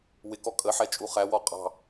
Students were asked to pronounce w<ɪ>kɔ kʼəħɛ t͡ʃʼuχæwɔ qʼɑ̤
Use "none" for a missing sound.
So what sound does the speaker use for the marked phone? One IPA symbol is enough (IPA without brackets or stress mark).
ɪ